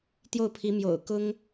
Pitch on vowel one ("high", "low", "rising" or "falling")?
falling